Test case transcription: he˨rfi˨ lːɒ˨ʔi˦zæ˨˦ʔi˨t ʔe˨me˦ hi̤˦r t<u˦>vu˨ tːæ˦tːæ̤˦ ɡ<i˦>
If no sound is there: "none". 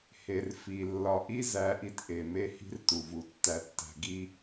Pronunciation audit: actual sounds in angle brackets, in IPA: u˨, i˦

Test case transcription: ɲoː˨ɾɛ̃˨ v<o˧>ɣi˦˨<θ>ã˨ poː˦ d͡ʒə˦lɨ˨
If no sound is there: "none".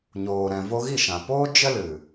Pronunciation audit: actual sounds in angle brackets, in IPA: o˧, ʃ

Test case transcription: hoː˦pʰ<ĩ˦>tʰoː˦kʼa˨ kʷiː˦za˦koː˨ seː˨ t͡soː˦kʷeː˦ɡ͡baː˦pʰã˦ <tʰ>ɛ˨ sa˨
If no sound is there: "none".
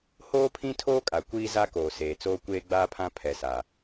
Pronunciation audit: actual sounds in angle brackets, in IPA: ĩ˦, pʰ

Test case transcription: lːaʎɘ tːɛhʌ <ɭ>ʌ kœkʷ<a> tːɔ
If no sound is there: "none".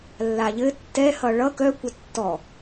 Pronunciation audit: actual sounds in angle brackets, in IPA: ɭ, ʌ

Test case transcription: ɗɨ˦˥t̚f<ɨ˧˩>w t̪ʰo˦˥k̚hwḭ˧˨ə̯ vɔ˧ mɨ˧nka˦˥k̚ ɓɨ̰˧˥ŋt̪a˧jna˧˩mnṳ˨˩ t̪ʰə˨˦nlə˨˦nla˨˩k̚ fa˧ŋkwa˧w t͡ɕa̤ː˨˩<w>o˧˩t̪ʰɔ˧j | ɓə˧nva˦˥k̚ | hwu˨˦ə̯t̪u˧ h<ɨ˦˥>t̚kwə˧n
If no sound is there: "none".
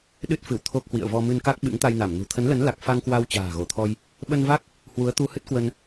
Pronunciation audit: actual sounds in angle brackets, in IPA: ɨ˧˩, ɣ, ɨ˦˥

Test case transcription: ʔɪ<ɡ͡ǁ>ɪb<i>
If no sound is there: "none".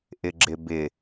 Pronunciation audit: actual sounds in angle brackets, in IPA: ɡ͡ǁ, ɪ

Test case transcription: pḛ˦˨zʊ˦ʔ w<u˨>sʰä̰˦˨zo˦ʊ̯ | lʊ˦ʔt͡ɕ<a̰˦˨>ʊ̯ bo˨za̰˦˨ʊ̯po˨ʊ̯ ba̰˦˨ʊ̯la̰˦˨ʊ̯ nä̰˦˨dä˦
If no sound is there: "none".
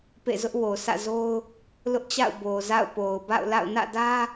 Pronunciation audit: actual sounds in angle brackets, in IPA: o˨, a̰˦˨

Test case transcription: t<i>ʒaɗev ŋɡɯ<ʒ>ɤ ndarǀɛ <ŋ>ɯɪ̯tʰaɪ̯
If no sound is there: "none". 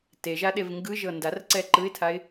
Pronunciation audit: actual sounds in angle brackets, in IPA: e, ʒ, ǃ

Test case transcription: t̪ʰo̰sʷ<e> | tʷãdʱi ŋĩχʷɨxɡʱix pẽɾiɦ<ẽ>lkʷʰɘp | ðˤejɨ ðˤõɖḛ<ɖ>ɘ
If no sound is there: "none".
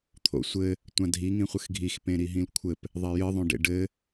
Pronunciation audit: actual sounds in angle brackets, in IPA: ɘ, ĩ, ɖ

